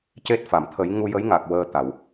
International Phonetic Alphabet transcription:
c e˦˥ t̚ f a˨˩˨ m t̪ʰ ə˨˩˦ j ŋ u˧ j ə˧˥ j ŋ a˨˩ k̚ w əː˧ t̪ a˨˩˨ w

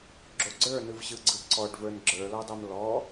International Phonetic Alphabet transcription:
ɡ͡ǁ o ɡ͡ǀ ə˞ n ɯ v ɕ ɯ ɡ͡ǀ ɯ ǀ ɔ ɖ v ə˞ n ɡ͡ǁ ə˞ l ɔ dˤ o m l ɔ

